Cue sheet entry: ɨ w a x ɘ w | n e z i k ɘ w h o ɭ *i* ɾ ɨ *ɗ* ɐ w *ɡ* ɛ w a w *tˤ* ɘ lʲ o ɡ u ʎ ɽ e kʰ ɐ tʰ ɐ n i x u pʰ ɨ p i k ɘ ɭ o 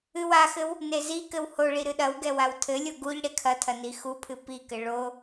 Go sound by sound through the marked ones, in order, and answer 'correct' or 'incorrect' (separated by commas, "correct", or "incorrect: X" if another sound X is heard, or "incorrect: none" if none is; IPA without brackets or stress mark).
correct, correct, correct, incorrect: tʰ